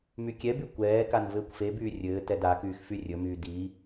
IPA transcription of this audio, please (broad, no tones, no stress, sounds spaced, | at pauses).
m y kʲ ɛ b y kʷ ɛː k a n v ɘː kʷ f e b yː rʲ ɘː t ɛ d a k yː x f y rʲ ɵ m yː d i